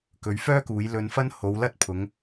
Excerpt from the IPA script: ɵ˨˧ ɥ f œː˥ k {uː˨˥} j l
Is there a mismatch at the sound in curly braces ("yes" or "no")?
yes